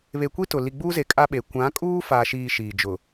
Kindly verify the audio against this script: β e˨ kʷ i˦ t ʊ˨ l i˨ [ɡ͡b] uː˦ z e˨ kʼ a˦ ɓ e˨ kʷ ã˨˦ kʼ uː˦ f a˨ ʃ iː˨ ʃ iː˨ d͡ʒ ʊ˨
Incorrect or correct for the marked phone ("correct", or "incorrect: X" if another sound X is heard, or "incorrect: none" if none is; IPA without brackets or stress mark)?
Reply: correct